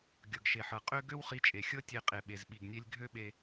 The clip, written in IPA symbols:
ɡʲ ɤ˩ ɡ ʃ e˩ ħ ɤ˩ qʼ ø˥ ɡ ø˥ w χ i˧ t͡ʃʼ e˩ xʲ ɤ˥ tʲ e˧ qʼ e˩ ɓ e˩ z ɓ i˩ ɡ nʲ e˧ lʲ ɡʱ ø˥ ɓ e˧

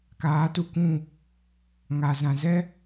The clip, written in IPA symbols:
k aː˨˦ t u˧ kʷ ũ˦˨ | ŋ a˨ z ã˨ z ɛ˦

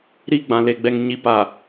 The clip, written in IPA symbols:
ɾ i˦ ɡ͡b ã˨ l e˨ ɡ͡b ɛ˨ ŋ ɲ i˨ p a˨

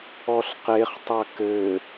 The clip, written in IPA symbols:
ɔ ɬ q e χ tˤ a k ɘ

